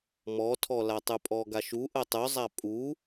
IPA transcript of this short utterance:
mɔtʰɔlatˤʉ pʼɔɡaʃu ʔətˤʉzˤa pʼu

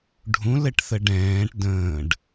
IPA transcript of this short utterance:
ɖʱũlɘʈθə ɖɛ̃ːʈ də̃ːɖ

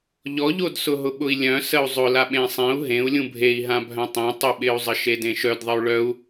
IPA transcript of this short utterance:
ʎɔʎodsʊ ɦʊɓʊi̯lʲœ̃ səu̯zˤʊla ɓẽsˤẽu̯ ɦẽu̯ lʲũbʱei̯ɦã bʱœ̃tˤẽ tˤɪɓɪu̯zˤə ʃedẽʃœd ðˤəu̯ɭœu̯

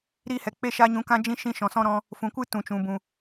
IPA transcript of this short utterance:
ɾi˧hɛ˨ k͡pe˦ʃa˦ɲũ˧ kã˧d͡ʒĩ˧ ʃĩ˧ʃɔ̃˨sɔ̃˧ ɾɔ̃˧ | fũ˨kʷɨ˦ tũ˨t͡ʃũ˨ bũ˨

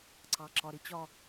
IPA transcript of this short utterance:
ǀɑ˨ǁɒ˨ ɾɪ˨t͡ɕɒ˨

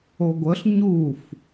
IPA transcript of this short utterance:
oɡʷəɬ ɲuf

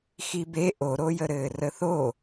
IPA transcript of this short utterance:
xibe ʔoɾojəɾɘː rəθo

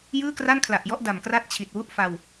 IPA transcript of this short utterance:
jɯː˥˩kra˥˩nkʰla˨˩ʔjɔ˥˩ʔ da˨˩mkra˥˩t̚ t͡ɕʰi˨˩t̚wu˥˩ʔfa˧w

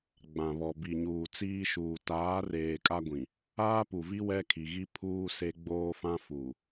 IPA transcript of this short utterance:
ɡ͡bã˨βɔ˨bi˨ɲuː˨ t͡siː˦ʃuː˨ taː˨˦reː˨ kʼa˦ɡʷĩ˨ | aː˦pu˨vi˦ wɛ˦kʰi˨ ɣi˦ pʰuː˦ se˦ɡ͡boː˦fã˦ fuː˨

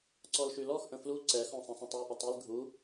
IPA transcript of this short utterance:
ǀɔlʃylɔx ʔə̃flu ǀɛ xɔ̃sˤə̃sˤə̃tˤy ʔətˤil ɡʱu

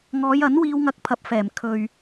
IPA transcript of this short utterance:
ŋɔː˨˧jɐ˨˥n wiː˧wŋɐ˧k̚pʰɐ˨˥p̚ fɛː˨˩m kʰɵ˨ɥ

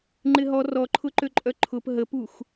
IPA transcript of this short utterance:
ŋ͡ǃɪɦɔ rɔǃʰʊǃøǃʼœ ǃʰʊp ɦəpux

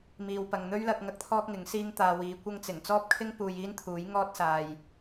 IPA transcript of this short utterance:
miː˨wpɐ˨ŋn̪ɵ˥ɥlɐ˧k̚ ŋɐ˥k̚t̪ʰɔː˥k̚ŋɪ˨˥ŋ siː˥ŋt̪aː˧wiː˨˧ kʷɐ˥ŋt͡sɪ˨˩ŋ t͡sɔː˥p̚kʰɪ˥ŋ puː˧jiː˥nt̪ʰuː˨˥j ŋɔː˥t̚saː˨j

